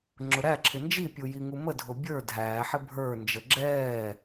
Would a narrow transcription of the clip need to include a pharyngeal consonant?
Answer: yes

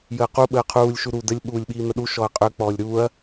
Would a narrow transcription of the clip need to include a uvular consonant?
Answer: yes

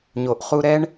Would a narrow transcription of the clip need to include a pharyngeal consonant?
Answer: no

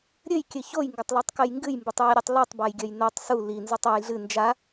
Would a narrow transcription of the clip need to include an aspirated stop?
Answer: no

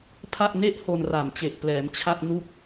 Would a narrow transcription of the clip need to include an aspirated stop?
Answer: yes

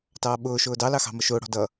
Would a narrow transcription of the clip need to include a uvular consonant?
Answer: no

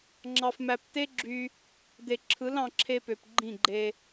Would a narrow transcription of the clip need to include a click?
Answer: yes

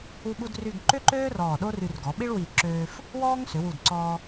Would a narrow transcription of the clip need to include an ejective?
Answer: no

